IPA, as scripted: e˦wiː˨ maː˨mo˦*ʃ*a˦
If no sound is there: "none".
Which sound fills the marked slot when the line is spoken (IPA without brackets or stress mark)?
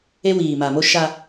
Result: ʃ